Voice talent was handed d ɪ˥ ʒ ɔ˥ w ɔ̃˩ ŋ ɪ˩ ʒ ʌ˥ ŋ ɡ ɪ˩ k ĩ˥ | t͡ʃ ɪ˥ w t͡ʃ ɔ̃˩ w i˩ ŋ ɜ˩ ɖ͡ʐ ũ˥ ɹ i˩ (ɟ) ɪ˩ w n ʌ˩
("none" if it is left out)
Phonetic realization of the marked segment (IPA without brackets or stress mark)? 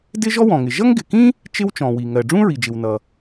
d͡ʒ